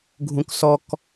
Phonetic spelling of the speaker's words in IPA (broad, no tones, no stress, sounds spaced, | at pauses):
ɡʱ ũ k s ɔ k